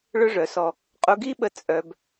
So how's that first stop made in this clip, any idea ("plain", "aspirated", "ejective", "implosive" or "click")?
ejective